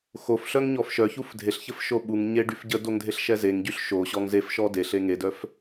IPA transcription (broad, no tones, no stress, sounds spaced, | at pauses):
x o f ɬ œ ŋ ɲ ɔ f ʃ œ ç u f dʱ e ɬ ç ə f ʃ o ɓ u ŋ ɲ e ɖ y f ɟ ə d o ŋ dʱ e ɬ ʃ ɛ z e ŋ ɟ y ɬ ʃ o ɕ ɔ ŋ z e f ʃ ɔ d e ɬ e ŋ e d œ f